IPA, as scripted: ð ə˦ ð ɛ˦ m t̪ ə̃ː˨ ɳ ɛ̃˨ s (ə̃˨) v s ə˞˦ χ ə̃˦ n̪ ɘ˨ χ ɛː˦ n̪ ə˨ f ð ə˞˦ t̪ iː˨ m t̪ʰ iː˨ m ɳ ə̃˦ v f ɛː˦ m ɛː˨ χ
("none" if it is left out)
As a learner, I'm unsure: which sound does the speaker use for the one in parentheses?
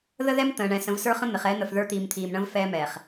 ə̃˨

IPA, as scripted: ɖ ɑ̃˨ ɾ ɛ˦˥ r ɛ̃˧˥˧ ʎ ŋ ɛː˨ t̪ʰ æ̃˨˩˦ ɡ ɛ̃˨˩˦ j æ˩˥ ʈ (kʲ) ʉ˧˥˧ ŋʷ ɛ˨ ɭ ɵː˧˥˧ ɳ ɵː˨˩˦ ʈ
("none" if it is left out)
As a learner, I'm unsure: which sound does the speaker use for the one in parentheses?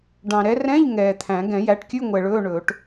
kʲ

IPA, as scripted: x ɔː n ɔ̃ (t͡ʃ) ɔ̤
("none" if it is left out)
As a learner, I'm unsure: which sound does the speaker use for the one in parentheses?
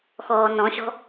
ɕ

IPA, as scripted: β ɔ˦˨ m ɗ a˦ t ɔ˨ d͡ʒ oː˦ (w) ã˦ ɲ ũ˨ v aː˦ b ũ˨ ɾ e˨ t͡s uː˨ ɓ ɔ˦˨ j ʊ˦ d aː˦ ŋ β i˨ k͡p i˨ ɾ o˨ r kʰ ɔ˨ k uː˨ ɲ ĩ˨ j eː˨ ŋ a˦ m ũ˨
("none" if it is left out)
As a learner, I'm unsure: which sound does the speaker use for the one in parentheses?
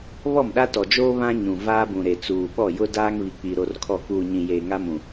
β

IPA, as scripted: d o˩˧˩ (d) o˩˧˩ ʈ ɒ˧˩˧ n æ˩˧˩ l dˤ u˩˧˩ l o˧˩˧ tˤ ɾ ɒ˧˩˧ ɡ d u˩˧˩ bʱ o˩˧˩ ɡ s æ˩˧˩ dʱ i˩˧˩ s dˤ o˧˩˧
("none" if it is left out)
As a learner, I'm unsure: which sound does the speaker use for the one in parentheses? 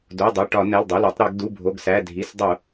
dˤ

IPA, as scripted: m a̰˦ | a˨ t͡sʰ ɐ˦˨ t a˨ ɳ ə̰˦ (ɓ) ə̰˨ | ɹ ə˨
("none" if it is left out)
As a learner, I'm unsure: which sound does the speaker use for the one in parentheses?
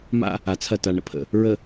pʰ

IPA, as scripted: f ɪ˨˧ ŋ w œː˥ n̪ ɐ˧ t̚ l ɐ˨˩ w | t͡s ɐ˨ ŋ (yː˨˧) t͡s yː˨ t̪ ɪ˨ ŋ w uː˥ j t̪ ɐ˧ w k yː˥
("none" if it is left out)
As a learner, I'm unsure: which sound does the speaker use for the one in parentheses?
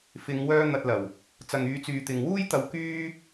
yː˨˧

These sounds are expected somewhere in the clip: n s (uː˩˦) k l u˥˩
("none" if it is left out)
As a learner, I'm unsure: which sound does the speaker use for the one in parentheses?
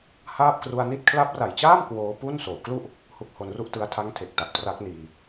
oː˩˦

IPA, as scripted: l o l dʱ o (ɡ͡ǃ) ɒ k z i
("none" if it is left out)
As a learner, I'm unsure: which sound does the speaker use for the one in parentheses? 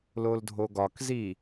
ɡ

